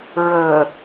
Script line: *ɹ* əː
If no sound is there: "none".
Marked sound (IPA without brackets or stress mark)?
ɹ